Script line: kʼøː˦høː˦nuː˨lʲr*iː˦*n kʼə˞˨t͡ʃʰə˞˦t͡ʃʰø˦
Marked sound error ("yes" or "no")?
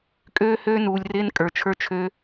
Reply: yes